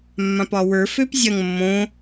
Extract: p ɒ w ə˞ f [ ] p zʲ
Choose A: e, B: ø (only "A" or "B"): B